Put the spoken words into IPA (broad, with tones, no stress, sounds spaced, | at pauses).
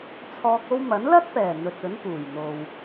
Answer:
t͡sʰ ɔː˧ k̚ o˥ w m ɐ˨˥ n l ɐ˥ t̚ p ɛː˨˩ n̪ ɵ˨ t̚ ɵ˨˥ n p uː˨˩ j n̪ o˨ w